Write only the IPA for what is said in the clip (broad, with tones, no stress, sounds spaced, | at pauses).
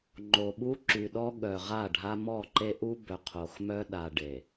ŋ͡ǃ o˨ ɓ u˦ ǁ y˨ ɗ ɔ˦ ɠ œ˨ ʁ a˦˨ ɖʱ a˦ m ɔ˦˨ ǃ e˦ ʔ u˦ b œ˨ qʰ o˨ x m œ˦ ɗ a˨ ɖ e˨